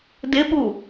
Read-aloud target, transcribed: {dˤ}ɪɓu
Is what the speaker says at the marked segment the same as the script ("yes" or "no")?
no